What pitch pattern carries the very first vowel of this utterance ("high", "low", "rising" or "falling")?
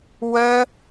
high